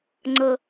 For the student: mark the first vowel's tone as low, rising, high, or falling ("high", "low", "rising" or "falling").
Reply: high